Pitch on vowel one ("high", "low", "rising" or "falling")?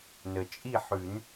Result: low